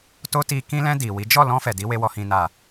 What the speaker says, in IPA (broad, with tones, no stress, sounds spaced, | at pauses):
t o˦ t i˧ k ĩ˧ l ɛ̃˧ d i˨ w i˨˦ d͡ʒ ɔ˦˨ l ɔ̃˧ f ɛ˨ d i˨˦ w e˧ w ɔ˨ h ĩ˨ n a˨